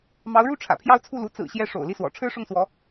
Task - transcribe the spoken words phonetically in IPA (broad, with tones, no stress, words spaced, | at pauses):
mɑ˧˥ʊ̯ɻu˥˩ ʈ͡ʂʰä̰˨˩pʰjɑ˥˧ʊ̯t͡sʰu˥˩lu˧˥ t͡sɹ̩˨˩ɕjɛ˧˥ ʂo̰˨˩ʊ̯li˥˩swɔ̰˨˩ ʈ͡ʂʰɻ̩˥ʂʊ˥˩ŋswɔ˧˥